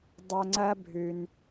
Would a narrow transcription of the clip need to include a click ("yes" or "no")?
yes